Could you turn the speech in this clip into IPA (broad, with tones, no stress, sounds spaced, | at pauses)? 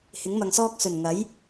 h ɪ˨˥ ŋ m ɐ˨ ŋ s ɔː˥ k̚ s ɵ˨˩ n ŋ ɐ˨˥ j